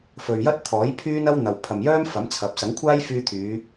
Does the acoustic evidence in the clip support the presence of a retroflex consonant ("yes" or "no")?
no